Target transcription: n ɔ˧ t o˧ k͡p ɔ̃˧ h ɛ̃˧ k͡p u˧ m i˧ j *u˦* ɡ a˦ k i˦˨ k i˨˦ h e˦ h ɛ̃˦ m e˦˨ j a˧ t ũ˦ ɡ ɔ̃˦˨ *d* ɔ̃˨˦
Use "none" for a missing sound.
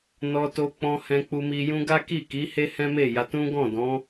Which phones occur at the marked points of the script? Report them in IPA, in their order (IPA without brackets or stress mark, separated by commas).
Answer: ũ˦, d